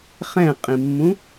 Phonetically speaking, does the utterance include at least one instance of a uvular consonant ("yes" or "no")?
yes